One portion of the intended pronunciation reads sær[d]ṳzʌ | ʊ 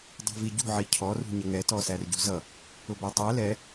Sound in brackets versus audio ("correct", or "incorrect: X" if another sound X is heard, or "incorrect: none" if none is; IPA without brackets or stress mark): incorrect: ɟ